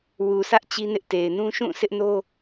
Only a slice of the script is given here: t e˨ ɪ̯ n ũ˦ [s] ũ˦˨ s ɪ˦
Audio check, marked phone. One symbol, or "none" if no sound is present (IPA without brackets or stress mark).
ʃ